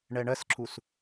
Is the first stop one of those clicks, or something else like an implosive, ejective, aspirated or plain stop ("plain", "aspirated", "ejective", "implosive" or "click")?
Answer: click